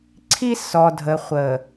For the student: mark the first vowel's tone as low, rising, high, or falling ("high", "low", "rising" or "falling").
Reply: high